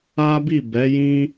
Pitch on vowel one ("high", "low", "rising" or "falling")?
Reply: high